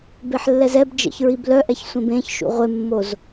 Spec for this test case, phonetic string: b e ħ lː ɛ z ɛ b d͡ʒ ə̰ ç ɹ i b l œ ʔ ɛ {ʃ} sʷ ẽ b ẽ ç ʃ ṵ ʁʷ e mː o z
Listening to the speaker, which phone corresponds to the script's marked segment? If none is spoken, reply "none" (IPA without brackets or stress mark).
ç